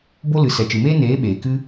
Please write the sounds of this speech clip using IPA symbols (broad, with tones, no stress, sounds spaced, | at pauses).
b o˦ l ɨ˨˦ s ɛ˨ t͡ʃ ɨ˨ m eː˦ n eː˨˦ ɓ eː˨ k ɨ˦